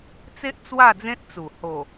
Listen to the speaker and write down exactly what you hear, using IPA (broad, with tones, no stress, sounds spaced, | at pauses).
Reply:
t͡s e˦ ʔ t͡s w a˥˧ d͡z ẽ˦ t̚ t͡s u˨˩ h o˨˩